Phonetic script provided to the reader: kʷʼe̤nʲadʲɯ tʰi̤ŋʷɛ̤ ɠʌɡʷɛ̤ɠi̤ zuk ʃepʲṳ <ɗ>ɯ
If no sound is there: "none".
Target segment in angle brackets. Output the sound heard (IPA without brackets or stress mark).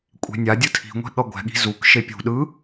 ɗ